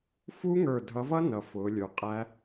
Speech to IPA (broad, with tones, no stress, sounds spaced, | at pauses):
f u˦˥ ŋ ə˞˧˩ dʱ ʌ˨˦ v ʌ˦˥ n ʌ˧˩ f ʊː˨˦ lʲ ə˞˧˩ qʼ æ˦˥